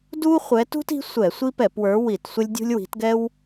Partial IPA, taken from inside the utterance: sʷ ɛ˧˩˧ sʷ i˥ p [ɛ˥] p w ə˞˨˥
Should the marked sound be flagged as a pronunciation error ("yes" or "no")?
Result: yes